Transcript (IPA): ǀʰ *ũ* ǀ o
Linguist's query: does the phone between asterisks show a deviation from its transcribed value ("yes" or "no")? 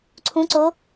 no